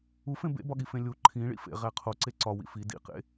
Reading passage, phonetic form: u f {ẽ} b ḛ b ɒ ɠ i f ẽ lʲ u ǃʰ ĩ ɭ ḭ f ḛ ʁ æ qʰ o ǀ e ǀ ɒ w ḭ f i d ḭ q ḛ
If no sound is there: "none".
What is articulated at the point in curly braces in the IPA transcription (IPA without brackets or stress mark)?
ẽ